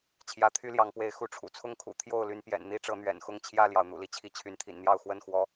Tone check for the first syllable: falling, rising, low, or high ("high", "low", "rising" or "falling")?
rising